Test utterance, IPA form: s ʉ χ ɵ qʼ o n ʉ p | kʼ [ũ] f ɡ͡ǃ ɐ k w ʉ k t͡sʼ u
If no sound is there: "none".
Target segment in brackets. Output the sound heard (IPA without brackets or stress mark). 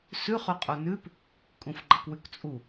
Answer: ũ